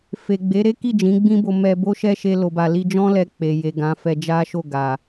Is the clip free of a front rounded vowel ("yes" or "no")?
yes